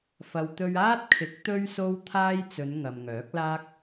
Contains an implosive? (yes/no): no